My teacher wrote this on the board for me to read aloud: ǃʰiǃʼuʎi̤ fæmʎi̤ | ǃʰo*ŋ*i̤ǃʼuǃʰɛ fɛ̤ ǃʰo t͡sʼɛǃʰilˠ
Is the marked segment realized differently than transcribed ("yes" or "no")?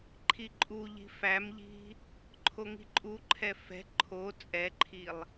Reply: no